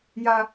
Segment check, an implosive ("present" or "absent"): absent